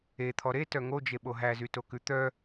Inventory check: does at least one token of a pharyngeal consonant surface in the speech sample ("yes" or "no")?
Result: no